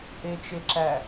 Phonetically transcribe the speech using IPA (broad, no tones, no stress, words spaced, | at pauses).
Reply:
ʔet͡ʃeǁæ